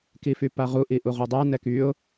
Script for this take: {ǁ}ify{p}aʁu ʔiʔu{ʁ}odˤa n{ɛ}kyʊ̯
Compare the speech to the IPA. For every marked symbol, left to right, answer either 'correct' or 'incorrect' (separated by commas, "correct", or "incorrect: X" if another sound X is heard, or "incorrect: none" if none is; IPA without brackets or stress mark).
incorrect: k, correct, correct, correct